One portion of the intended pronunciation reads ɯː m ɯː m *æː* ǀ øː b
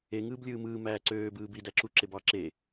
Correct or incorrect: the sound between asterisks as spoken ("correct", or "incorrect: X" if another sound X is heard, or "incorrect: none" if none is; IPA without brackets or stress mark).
correct